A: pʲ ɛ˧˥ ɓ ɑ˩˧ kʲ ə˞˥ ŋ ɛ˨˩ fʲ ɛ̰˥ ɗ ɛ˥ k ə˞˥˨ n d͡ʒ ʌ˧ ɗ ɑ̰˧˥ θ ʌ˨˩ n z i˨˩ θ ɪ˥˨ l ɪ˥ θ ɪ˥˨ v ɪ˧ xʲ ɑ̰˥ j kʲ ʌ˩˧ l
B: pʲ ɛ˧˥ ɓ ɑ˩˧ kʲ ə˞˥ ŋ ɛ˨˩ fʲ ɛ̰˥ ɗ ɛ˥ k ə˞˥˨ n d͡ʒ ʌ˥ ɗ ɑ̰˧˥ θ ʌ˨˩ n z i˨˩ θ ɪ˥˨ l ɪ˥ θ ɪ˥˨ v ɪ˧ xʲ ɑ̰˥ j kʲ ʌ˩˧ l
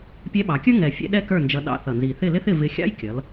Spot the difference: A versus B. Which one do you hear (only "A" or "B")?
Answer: A